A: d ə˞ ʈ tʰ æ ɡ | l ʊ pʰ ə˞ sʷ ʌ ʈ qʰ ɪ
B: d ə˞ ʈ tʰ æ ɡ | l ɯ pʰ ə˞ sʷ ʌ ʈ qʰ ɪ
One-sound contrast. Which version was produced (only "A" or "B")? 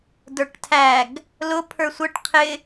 A